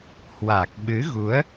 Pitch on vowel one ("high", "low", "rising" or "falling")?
low